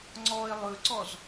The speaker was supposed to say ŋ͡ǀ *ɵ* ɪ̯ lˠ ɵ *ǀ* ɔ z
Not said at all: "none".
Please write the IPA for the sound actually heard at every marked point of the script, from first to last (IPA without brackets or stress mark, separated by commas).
ɔ, ǀ